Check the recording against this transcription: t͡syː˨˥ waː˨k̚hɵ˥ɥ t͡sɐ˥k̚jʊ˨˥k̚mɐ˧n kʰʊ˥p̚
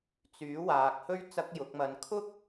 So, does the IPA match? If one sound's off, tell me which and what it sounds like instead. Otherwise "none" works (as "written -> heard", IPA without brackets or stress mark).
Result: p̚ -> k̚